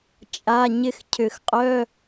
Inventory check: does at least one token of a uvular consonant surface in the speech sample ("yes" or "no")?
yes